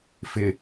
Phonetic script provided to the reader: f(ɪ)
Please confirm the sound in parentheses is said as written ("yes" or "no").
yes